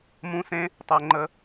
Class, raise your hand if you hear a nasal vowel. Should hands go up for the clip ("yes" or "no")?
yes